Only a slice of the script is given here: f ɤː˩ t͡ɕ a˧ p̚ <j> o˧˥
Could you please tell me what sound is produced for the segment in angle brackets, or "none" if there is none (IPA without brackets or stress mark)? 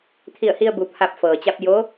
j